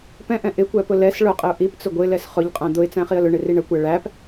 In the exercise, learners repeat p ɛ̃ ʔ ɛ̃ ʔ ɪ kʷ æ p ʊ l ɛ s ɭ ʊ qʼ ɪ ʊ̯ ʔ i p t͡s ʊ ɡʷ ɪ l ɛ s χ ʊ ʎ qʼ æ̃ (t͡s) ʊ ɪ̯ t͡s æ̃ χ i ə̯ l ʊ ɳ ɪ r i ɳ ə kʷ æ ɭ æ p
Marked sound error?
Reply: yes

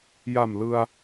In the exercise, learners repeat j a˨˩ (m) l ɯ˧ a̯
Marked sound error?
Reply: no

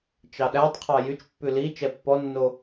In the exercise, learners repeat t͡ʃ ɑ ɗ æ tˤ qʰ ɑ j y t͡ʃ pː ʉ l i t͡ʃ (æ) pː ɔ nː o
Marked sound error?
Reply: yes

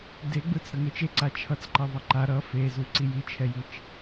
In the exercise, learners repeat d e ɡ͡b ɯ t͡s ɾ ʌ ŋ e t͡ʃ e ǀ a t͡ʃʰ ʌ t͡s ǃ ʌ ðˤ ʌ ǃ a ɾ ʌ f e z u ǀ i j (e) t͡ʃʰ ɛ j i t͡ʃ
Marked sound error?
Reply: yes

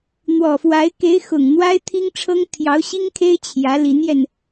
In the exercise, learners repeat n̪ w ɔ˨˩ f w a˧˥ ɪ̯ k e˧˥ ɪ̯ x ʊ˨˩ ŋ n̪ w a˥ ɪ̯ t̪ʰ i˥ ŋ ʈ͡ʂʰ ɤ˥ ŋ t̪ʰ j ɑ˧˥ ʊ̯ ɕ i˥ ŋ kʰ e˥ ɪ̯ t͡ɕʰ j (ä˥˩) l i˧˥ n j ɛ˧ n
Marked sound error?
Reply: yes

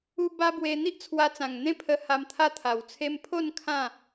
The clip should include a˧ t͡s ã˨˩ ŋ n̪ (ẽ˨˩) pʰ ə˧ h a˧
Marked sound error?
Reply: yes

